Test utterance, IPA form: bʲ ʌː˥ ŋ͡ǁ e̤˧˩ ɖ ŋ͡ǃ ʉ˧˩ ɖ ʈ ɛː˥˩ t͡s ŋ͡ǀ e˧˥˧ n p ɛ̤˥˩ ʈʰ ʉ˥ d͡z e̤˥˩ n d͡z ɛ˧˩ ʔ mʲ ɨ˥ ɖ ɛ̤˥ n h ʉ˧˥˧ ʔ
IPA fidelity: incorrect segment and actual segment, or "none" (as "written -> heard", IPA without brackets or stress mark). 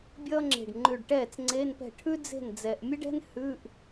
none